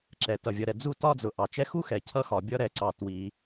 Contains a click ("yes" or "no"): yes